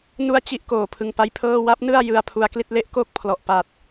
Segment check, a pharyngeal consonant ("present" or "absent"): absent